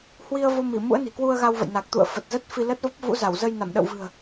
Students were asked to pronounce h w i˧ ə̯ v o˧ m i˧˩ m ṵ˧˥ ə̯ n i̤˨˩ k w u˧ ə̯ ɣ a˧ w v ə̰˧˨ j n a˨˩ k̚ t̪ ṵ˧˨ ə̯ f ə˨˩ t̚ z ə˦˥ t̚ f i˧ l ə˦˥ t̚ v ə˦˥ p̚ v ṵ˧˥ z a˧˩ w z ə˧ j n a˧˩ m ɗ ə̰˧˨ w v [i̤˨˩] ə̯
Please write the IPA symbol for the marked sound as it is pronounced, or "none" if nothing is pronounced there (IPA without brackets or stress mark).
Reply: ɨ̤˨˩